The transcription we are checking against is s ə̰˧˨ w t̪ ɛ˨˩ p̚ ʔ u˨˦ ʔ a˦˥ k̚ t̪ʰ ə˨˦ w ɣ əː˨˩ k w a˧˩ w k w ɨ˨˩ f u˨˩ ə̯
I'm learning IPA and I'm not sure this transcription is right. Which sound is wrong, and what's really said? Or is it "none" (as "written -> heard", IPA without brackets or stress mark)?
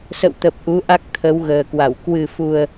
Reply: ɛ˨˩ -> ə˨˩